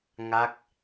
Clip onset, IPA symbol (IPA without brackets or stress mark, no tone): ŋ